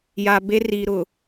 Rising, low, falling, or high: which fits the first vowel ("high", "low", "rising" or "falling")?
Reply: low